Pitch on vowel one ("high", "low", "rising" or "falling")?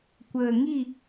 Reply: low